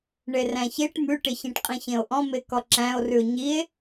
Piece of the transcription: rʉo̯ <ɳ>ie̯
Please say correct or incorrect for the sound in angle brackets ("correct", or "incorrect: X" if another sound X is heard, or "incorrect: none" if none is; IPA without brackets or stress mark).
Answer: incorrect: ɲ